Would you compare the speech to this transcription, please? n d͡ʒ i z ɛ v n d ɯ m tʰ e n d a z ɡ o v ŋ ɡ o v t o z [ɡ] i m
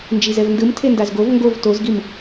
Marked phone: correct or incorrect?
correct